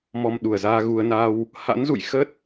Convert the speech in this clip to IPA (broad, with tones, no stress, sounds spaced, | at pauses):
m ɔ˧ m ɗ u˧˩ ə̯ z aː˧ ɣ u˧ ə̯ n a˧ w | h a̰˧˥ n z ṵ˧˨ j x ə˦˥ t̚